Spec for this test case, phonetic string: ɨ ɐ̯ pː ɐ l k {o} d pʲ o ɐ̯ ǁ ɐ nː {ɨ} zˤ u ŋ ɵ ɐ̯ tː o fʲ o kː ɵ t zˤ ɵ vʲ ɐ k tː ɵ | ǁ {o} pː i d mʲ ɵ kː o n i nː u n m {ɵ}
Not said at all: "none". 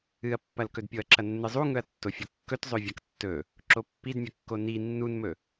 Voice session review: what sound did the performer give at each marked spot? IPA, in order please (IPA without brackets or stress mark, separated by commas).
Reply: ɵ, ɨ, o, ɵ